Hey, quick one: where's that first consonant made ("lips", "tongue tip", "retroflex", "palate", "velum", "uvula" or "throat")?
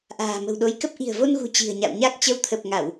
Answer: throat